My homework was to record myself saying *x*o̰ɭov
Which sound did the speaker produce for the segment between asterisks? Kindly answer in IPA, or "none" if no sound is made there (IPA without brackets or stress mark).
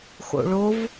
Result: x